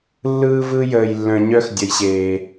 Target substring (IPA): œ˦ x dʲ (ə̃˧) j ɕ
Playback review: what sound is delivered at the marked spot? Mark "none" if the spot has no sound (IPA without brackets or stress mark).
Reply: ə˧